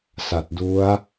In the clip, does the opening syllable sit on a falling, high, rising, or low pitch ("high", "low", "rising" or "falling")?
low